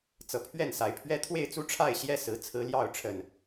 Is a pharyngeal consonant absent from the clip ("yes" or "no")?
yes